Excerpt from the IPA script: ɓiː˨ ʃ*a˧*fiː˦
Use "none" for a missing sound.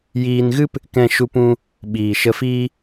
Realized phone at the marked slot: ə˧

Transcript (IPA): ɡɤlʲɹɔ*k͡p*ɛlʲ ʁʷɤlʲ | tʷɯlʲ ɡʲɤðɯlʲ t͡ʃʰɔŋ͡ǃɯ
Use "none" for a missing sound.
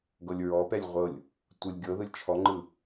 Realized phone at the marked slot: p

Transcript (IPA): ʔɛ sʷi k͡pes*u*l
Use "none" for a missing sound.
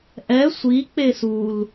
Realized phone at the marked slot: u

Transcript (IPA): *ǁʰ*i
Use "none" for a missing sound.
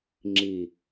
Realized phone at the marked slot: ŋ͡ǁ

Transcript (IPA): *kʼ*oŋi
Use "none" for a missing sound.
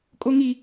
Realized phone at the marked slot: kʼ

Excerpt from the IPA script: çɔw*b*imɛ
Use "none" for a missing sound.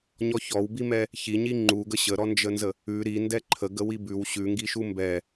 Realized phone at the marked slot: b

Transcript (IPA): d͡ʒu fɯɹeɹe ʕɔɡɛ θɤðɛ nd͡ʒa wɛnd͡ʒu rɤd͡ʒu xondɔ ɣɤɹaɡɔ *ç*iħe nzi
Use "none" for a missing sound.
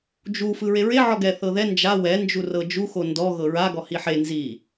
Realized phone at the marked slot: h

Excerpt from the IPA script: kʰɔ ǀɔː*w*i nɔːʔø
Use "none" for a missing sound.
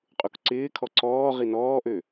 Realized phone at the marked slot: ʁ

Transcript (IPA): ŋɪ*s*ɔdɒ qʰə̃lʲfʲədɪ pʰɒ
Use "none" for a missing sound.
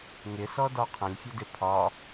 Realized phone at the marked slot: s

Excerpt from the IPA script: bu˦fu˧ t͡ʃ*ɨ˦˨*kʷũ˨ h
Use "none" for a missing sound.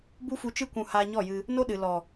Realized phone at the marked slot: ɨ˧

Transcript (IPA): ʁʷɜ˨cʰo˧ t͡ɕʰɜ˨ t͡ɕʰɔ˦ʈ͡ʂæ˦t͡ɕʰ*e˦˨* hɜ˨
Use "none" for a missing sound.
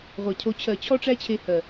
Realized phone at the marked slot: e˧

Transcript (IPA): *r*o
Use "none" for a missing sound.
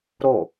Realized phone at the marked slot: ɾ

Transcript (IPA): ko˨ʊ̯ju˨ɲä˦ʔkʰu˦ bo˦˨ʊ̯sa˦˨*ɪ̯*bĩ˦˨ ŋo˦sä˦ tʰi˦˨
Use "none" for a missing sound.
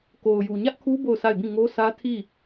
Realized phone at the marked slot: ɪ̯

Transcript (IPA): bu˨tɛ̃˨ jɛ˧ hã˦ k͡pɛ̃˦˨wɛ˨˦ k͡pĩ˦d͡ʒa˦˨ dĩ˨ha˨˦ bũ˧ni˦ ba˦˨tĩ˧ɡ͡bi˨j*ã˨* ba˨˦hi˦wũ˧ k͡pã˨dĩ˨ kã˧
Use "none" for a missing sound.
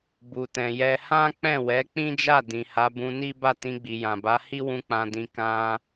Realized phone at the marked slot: ã˨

